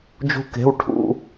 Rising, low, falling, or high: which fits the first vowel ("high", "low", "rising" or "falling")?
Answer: high